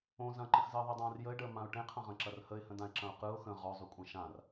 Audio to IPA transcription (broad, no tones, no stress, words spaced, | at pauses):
õ zɐ̃ǃə̃xzəː ðˤidˤãːrjəɪ̯ɖəː mãʊ̯ʈẽqʰɐ̃ʁɐ̃ ǁɐrhəɪ̯hə̃dãɪ̯ ǁɐ̃ʊ̯qɯʊ̯ xə̃ ʁɔzˤykʷʼɐ̃ ʃãr